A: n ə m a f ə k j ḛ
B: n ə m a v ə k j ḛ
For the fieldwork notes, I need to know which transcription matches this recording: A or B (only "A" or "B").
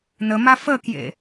A